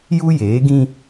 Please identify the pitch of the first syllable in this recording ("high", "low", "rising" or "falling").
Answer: high